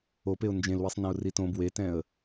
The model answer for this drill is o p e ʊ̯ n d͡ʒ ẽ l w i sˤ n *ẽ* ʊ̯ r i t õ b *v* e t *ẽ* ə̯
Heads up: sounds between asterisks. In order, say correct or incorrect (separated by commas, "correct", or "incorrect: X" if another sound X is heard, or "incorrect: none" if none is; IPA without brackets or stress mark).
incorrect: ɛ̃, incorrect: w, incorrect: ɛ̃